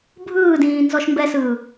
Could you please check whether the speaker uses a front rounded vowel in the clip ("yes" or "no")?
no